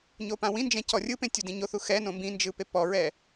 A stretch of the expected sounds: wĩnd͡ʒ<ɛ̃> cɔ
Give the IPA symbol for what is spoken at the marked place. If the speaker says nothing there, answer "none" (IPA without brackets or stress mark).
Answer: ɛ̃